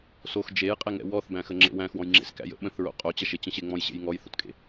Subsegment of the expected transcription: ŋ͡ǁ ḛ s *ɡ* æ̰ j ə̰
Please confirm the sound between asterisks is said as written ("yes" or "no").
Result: no